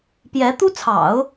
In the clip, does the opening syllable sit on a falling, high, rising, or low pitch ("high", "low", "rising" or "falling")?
rising